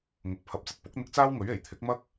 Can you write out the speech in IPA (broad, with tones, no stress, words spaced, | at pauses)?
ŋʊ˨k̚ pʰɐ˧p̚t͡sɐ˧t̚ pʊ˨˥k̚n̪ɪ˧k̚ t͡saː˥wŋɵ˨˥ɥ e˨˩jt̪ʰɪ˨˥k̚mɐ˥k̚